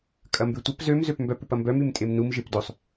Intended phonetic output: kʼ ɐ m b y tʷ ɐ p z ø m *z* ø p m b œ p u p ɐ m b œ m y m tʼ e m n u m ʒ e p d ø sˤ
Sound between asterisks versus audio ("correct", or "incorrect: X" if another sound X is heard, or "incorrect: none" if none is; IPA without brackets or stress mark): correct